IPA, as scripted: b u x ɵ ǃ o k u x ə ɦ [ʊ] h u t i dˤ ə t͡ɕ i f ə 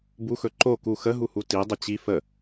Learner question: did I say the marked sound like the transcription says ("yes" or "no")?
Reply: no